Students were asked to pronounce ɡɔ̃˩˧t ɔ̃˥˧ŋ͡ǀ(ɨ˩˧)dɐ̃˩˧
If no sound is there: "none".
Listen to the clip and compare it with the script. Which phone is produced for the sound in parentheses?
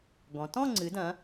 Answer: ɨ˩˧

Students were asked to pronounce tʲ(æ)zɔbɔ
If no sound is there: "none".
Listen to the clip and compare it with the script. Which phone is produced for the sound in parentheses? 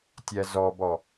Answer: æ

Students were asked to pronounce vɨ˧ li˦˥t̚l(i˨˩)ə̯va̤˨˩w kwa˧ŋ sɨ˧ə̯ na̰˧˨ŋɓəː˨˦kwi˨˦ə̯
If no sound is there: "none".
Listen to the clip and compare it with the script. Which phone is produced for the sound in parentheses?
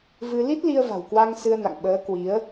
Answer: i˧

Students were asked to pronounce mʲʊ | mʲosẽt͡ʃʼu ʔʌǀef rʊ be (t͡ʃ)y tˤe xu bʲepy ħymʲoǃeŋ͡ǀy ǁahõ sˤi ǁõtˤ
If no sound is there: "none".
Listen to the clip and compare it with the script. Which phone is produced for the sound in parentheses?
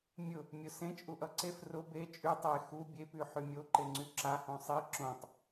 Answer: t͡ʃʼ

